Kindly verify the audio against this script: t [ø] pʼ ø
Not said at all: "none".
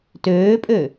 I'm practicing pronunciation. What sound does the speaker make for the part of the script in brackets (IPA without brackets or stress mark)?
øː